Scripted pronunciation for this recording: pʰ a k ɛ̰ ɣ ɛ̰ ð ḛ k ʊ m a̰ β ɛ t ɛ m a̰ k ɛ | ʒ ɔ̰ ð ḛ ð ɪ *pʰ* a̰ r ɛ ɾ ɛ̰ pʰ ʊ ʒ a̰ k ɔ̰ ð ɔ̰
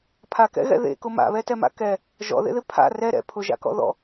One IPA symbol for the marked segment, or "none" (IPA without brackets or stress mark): pʰ